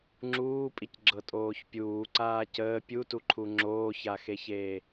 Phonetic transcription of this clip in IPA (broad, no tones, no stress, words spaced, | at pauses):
ŋ͡ǁuːpʼicɡ͡ǁɤtʼoːç pʲuːǀaː cəː pʲutuǃʰu ŋ͡ǁoːçaxeçeː